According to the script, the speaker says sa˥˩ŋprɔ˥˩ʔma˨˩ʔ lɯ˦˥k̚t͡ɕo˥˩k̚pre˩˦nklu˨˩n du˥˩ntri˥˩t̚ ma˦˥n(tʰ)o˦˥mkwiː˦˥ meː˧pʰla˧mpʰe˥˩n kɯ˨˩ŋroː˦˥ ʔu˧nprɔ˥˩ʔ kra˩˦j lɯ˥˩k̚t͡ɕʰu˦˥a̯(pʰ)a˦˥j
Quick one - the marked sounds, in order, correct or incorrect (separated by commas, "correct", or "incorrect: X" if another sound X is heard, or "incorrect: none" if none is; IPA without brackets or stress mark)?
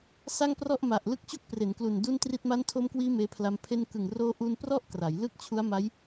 correct, incorrect: m